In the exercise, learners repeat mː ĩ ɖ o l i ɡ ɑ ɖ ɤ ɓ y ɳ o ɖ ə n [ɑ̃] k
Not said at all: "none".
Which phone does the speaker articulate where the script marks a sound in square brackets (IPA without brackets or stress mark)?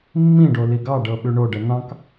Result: ɑ̃